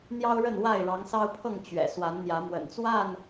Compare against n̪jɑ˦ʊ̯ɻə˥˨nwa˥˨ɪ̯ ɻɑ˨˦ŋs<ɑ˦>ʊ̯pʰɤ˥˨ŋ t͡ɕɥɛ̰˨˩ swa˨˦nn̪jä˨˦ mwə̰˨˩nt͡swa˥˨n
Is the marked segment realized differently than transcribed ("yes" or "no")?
no